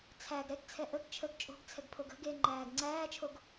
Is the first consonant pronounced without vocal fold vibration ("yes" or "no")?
yes